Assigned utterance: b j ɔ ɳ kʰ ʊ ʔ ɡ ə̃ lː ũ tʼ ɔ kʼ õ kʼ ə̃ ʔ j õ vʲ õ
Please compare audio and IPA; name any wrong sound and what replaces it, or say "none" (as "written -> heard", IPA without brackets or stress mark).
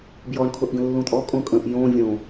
none